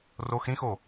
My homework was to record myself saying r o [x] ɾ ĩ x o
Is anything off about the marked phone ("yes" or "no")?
no